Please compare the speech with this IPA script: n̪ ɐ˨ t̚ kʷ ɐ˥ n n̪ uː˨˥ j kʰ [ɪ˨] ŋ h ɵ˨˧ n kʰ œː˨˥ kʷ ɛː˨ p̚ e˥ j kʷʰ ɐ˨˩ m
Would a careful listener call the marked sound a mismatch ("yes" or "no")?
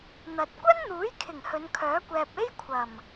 yes